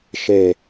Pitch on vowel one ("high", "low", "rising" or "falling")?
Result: low